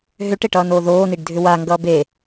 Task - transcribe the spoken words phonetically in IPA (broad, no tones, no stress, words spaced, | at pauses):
ɦʏʈeʈʌːnoː ðoːniɖdʱʏ waŋɡʌː be